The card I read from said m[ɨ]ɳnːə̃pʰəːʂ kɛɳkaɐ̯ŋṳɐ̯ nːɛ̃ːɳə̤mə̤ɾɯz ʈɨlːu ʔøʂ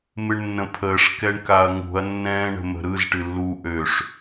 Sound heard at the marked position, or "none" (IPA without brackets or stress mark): ɨ